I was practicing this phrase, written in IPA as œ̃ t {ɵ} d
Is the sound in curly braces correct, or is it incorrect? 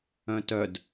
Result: incorrect